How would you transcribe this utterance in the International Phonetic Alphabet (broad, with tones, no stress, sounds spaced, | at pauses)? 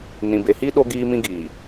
n ĩ˨ b e˨ h i˦ ɗ o˦ ɡ iː˦ m ĩ˦ ɡ iː˨